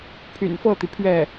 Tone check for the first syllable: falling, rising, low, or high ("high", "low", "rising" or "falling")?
low